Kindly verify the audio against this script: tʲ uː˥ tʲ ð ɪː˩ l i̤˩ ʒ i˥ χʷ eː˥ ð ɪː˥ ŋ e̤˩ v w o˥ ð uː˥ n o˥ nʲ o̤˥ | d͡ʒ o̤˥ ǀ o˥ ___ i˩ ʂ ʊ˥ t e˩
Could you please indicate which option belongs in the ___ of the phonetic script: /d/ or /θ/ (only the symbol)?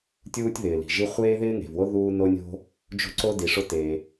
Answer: d